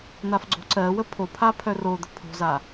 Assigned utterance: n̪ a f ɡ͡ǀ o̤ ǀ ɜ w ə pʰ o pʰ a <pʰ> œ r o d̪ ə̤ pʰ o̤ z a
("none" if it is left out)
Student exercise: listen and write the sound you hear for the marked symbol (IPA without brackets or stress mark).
pʰ